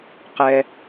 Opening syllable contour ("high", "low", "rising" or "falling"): low